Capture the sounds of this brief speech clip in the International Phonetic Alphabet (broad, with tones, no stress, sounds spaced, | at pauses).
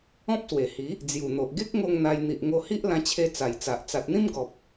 ɔ̃˦ p̚ s w e˨˩ h i˨˦ | d͡z j u˨˩ n̪ o˨ ʔ ɡ e˦ k̚ ŋ o˧ ŋ n̪ a˧ j n̪ i˨ ʔ ŋ o˧ h i˦ ʔ l ã˧ t͡ɕʰ e˧ t͡s a˨˩ j t͡s a˨ ʔ t͡s a˨ t̚ n̪ ĩ˦ m ɡ ɔ˨ p̚